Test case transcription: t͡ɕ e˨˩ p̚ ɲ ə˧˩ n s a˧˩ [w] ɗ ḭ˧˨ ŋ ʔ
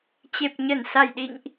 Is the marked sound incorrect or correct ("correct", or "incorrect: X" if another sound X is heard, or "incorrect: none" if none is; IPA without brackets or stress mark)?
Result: incorrect: j